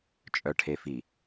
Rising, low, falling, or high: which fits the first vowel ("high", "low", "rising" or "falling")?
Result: low